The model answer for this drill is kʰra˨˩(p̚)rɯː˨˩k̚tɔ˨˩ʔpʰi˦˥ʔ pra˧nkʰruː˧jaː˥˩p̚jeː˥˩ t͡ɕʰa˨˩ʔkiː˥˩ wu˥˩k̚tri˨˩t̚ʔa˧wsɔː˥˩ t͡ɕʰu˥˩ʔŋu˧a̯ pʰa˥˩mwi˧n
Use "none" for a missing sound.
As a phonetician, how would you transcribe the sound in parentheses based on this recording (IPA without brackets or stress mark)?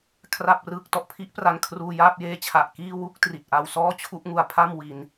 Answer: p̚